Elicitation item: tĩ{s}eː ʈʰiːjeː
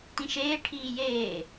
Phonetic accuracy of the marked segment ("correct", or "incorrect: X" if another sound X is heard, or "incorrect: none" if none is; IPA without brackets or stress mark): incorrect: ʃ